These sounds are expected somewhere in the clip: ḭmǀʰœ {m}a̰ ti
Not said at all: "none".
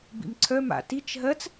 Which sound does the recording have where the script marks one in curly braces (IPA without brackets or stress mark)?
m